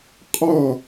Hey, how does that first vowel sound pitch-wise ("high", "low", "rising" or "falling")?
falling